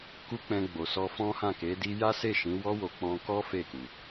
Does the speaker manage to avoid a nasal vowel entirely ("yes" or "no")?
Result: no